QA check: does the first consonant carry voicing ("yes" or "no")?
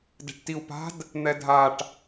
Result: yes